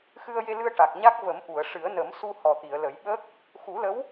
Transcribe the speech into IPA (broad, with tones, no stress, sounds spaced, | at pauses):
x ɨ˧ ə̯ j e˧ l ɨ˧ ə̯ ʈ a˨˩ k̚ ɲ a˦˥ k̚ v ə˨˩˦ m ʔ u˨˩˨ ə̯ ʂ ɨ˨˩˦ ə̯ n ə˨˩˦ m s u˧ h ɔ˨˩ t̪ i˨˩˨ ə̯ l ə˨˩˦ j ɓ ə˦˥ k̚ | x u˨˩˦ l ə˧˥ w